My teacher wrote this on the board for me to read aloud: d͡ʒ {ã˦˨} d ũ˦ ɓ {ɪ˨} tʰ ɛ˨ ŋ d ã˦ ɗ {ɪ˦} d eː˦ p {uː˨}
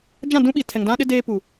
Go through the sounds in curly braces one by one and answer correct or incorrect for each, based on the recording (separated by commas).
correct, incorrect, correct, correct